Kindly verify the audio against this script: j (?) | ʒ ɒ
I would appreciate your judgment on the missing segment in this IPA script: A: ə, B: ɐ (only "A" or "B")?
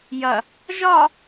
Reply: B